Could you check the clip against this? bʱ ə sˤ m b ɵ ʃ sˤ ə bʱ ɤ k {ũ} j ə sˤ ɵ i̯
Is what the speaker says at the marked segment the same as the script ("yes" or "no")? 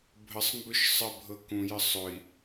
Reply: yes